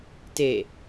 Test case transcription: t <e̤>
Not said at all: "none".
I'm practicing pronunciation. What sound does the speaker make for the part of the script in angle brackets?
e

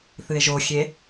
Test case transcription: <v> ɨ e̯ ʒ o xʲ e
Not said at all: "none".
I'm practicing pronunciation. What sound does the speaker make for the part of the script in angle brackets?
θ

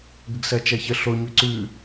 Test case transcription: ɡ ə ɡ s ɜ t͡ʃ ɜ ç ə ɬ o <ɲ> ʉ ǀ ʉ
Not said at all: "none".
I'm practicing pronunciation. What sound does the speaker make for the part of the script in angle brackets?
ɲ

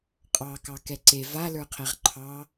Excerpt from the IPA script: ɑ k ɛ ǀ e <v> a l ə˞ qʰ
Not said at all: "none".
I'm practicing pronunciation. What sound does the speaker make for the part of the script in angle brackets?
v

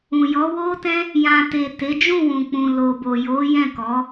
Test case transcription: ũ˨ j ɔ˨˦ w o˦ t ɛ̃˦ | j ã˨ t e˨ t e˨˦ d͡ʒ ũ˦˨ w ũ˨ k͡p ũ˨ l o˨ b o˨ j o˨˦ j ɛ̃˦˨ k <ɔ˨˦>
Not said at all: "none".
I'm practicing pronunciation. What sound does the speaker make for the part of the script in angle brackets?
ɔ˨˦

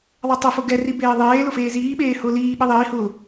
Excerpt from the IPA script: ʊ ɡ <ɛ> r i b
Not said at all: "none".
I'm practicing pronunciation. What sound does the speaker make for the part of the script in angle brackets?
ɛ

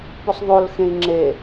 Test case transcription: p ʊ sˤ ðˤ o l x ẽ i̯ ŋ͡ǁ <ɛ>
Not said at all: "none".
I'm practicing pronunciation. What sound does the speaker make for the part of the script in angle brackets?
e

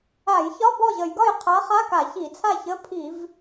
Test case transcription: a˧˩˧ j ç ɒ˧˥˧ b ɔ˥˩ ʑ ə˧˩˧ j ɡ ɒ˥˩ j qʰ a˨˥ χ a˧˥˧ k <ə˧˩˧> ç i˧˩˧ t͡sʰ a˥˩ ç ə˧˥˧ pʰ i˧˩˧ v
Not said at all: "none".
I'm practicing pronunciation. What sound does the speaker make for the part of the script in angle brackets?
a˧˩˧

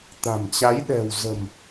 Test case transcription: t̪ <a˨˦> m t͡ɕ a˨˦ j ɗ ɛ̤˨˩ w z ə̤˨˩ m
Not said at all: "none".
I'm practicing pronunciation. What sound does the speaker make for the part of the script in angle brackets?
a̤˨˩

